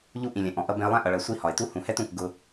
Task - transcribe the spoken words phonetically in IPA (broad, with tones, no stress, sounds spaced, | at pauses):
ʎ u˧ ʔ ĩ˨ lʲ ɛ̃˨ ʔ ɔ̃˨ ʔ ʌ˧ b ɛ̃˧ ə̯ lˠ æ̃˦ ʔ ʌ˧ ɭ ɜ˧ sʷ i˦˨ h ɒ˨ ɪ̯ t u˦ h ũ˧ h ɛ˦ t ũ˦˨ k ɡ ʊ˦